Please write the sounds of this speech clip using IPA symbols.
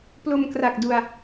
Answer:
plo˧m kra˨˩k̚du˧a̯

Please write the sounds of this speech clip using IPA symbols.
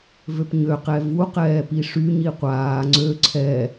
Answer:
vøpɲø qɛvu qɛːpiʂy ɲiqʷaː ŋ͡ǀø ǀʰɛ

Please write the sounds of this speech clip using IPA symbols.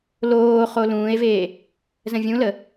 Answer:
loː χolũːe̯veː | zə̃vʲũlə

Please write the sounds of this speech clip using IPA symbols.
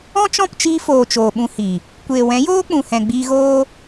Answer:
ɔ̃˦t͡ʃɔ̃˦˨pt͡ʃiː˧foː˨ t͡ʃoː˨ɓũ˧hi˨ | kʷeː˨wɛ̃˨˦joː˦k͡pũ˨ hɛ̃˨ɡ͡biː˧ɣoː˦

